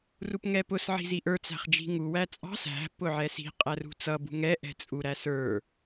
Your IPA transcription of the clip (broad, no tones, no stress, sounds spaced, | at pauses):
r u p ŋ ɛ p ʊ s ʕ i̤ z i ʔ ə˞ t͡s æ̤ χ d͡ʒ i̤ ŋ u w æ t͡sʼ ɑ̤ s æ̤ p ʊ ʕ ɛ s i̤ qʼ æ r ṳ t͡s ʌ b ṳ ŋ ɛ ʔ ɛ̤ t͡sʼ u ɾ æ s ə˞